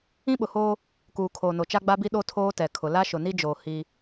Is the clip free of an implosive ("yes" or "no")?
no